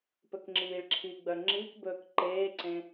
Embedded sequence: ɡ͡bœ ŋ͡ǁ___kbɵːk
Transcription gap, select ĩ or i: i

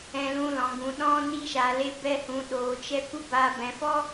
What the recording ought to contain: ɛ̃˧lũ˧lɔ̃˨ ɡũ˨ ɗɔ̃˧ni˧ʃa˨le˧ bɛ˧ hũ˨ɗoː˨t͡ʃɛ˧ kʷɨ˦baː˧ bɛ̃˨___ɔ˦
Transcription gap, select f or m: f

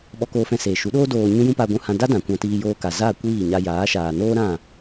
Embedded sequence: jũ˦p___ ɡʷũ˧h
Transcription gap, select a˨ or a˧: a˧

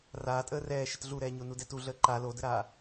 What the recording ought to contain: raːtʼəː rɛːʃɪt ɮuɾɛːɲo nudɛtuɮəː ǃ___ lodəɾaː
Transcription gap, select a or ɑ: a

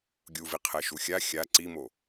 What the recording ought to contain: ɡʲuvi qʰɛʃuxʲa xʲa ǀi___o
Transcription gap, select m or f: m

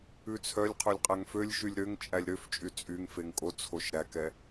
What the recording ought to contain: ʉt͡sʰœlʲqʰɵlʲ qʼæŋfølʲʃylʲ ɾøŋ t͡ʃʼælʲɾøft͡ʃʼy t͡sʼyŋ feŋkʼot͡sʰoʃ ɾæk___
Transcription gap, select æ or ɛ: ɛ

